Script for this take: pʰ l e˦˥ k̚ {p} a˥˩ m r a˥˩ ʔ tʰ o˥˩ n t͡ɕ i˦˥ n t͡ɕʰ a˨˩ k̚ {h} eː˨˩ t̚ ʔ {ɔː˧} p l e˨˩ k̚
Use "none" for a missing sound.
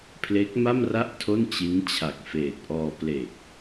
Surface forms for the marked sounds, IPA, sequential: m, f, ɔː˧

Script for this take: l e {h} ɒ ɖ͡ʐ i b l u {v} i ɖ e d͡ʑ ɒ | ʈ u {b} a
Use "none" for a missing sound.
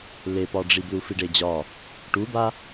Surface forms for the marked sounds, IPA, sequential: p, f, b

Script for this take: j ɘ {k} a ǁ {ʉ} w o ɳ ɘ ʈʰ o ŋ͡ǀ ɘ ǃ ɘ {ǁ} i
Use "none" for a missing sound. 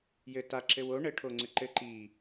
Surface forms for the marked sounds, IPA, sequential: t, ɘ, ǃ

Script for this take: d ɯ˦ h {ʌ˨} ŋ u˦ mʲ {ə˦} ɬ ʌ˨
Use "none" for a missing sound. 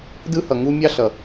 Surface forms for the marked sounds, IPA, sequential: ʌ˨, ɑ˦

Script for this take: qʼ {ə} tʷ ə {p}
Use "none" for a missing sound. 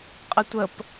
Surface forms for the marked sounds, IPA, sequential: ə, p

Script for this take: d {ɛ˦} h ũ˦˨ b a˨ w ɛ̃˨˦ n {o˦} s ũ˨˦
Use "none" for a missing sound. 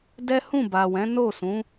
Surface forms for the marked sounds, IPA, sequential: ɛ˦, o˦˨

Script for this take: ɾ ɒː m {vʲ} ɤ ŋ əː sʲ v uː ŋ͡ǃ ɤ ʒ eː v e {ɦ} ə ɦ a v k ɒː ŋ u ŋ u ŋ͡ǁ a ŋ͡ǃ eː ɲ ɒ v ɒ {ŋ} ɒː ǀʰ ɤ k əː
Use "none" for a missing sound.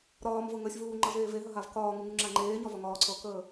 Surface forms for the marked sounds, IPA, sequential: v, ɦ, ŋ

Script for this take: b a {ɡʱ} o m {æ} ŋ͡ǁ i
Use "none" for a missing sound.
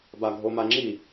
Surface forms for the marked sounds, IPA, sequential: ɡʱ, a

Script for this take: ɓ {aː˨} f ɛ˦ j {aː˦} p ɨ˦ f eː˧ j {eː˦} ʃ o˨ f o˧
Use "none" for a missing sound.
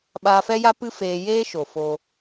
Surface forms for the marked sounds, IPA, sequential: aː˧, a˦, eː˦

